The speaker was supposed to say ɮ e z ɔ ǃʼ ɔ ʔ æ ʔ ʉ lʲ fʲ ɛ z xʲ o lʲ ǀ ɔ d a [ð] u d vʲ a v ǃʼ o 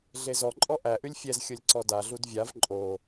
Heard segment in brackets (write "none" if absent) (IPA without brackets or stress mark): ɮ